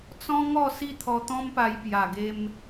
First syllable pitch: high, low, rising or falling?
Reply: high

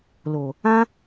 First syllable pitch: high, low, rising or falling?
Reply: low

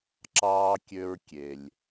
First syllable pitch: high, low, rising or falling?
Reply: low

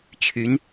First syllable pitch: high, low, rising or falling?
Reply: rising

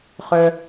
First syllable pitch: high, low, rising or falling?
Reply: high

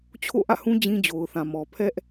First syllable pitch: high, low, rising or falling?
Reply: falling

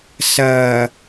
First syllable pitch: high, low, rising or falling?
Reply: low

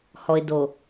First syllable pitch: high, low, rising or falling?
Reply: low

